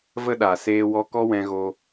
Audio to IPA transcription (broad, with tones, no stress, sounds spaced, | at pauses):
v ə˦ ɗ a˨ s eː˧ w ɔ˧ k ɔ˦ w ɛ̃˧ ɣ o˧